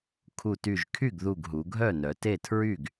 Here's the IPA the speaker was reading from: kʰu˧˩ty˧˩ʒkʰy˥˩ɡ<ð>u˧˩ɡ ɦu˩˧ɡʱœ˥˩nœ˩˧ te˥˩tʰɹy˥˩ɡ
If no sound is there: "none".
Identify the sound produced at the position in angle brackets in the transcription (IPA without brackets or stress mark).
ð